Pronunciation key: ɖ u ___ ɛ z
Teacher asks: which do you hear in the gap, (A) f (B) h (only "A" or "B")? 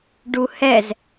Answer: B